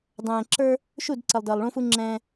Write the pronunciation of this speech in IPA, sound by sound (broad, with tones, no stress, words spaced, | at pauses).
dˤɛ̃ː˨ǁə˞˦ | ʃu˦˨d ǀə˨lˠ dəː˨lˠɭũ˦fu˦ŋ͡ǁɛ̃ː˦